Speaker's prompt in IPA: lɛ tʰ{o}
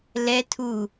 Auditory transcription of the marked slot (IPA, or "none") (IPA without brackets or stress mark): u